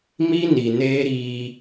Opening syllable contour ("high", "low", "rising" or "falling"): high